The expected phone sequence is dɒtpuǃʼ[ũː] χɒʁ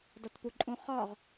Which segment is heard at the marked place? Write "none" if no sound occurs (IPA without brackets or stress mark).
ũ